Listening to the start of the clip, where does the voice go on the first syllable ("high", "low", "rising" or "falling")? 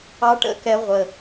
high